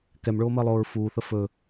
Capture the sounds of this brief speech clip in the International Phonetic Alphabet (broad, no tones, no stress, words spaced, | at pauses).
kɛmɭoːməːlˠoːɹ fuːθə fɵ